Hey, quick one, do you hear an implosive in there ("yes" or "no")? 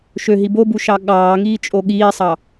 yes